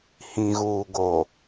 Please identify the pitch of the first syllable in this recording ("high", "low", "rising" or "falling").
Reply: low